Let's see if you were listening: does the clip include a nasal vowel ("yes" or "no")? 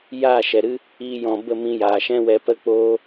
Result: yes